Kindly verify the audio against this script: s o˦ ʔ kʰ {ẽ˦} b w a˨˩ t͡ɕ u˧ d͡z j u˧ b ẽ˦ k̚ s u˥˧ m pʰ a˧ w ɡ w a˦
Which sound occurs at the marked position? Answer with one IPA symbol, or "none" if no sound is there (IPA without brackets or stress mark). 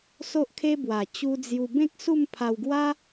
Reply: e˦